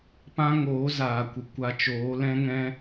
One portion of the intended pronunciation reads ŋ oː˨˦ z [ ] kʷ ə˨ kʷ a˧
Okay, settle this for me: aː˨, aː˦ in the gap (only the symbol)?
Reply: aː˨